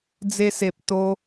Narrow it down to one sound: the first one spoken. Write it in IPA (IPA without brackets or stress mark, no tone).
d͡z